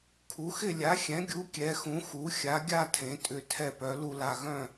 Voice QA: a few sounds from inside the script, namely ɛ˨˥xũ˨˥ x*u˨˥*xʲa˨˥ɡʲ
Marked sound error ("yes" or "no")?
no